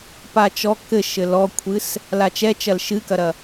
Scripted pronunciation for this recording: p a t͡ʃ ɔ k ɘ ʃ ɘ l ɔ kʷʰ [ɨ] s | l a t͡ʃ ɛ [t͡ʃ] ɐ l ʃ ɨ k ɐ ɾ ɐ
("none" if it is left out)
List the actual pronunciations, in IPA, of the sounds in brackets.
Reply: ɨ, t͡ʃ

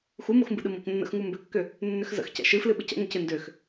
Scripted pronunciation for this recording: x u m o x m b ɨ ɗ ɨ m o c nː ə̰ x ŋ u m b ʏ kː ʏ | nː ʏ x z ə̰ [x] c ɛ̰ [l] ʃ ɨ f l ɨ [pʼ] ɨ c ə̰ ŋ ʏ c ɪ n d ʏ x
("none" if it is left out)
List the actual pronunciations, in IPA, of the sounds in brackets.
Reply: x, none, ɓ

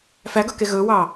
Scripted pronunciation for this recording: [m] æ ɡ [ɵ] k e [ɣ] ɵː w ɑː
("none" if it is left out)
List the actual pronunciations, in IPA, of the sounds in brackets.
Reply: f, ɵ, ɣ

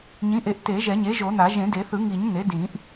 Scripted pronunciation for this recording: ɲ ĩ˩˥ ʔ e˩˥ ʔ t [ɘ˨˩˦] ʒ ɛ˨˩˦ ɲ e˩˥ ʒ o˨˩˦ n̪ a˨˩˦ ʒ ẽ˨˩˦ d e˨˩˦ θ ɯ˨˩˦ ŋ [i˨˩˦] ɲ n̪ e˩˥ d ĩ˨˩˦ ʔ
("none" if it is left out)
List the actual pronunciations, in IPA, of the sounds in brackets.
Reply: e˨˩˦, i˨˩˦

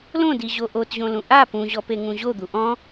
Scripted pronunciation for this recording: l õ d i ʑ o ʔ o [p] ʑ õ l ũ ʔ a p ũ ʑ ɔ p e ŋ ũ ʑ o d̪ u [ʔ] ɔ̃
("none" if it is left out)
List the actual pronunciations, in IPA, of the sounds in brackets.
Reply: t, ʔ

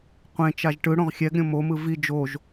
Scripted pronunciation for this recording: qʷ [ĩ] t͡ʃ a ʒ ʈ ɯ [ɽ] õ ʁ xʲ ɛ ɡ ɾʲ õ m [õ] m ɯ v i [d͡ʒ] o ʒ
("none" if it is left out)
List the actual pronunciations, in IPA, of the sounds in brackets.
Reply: ẽ, ɽ, o, d͡ʒ

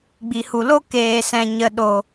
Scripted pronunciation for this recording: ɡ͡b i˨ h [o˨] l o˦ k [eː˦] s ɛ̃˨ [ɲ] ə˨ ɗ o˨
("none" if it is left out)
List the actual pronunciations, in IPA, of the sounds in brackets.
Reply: u˨, eː˨, ɲ

